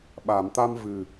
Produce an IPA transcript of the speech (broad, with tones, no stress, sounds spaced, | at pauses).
ɓ a˨˩˨ m t̪ a˧ m v ɨ˨˩